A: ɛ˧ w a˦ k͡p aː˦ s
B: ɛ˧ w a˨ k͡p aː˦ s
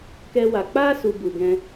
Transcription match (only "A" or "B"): B